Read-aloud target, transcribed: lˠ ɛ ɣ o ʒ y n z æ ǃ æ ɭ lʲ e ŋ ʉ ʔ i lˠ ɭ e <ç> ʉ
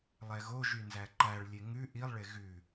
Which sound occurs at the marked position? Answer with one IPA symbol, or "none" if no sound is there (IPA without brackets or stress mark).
ɣ